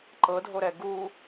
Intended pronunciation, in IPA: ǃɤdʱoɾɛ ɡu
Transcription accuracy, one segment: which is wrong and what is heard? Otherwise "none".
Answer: none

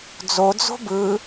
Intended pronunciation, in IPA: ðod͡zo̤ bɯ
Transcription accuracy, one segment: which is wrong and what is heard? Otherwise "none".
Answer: ð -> d͡z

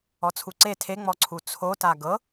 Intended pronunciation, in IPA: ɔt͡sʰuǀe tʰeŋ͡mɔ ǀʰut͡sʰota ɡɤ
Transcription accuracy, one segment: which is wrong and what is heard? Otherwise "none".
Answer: none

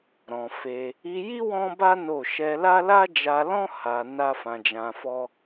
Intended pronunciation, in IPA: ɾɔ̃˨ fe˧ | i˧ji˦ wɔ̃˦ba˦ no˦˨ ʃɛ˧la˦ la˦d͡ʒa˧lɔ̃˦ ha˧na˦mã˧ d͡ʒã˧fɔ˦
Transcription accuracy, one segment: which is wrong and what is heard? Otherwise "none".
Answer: m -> f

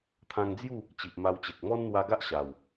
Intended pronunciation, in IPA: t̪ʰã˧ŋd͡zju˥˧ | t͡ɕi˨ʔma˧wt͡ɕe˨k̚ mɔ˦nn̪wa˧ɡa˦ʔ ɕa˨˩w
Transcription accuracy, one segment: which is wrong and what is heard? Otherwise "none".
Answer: none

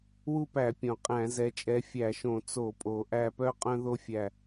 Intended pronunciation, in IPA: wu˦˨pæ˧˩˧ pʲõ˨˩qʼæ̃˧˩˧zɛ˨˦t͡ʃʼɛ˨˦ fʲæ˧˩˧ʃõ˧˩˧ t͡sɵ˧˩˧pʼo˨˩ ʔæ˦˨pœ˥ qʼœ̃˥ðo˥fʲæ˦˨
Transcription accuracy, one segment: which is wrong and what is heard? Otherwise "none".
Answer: ɵ˧˩˧ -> o˧˩˧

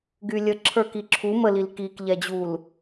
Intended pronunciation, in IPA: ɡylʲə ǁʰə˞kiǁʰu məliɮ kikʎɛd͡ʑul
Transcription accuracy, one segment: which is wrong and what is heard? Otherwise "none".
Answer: ɮ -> l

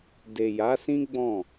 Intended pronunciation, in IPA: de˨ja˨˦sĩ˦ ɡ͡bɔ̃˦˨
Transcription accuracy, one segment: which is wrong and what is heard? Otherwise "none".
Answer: none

